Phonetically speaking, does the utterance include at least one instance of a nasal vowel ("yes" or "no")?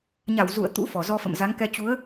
no